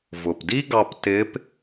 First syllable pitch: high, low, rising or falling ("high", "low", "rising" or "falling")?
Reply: low